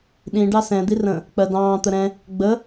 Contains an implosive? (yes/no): yes